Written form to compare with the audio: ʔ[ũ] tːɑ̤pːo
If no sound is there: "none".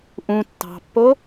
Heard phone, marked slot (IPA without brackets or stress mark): ũ